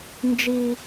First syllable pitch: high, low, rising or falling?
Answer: high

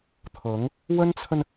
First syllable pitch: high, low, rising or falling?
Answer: rising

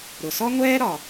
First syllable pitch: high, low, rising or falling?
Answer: low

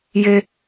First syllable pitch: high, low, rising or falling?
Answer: high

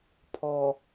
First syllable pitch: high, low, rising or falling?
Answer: low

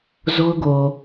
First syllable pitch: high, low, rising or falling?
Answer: high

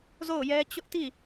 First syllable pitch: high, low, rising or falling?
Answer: falling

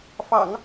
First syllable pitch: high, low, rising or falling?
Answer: low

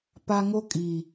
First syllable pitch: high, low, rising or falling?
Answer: high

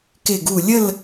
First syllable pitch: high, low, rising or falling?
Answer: low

